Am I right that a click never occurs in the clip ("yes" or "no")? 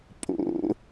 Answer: yes